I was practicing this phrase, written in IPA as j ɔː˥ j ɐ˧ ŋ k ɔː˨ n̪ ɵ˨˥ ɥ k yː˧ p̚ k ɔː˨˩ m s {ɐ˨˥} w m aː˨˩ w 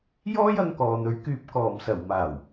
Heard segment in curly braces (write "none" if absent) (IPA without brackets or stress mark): ɐ˨˩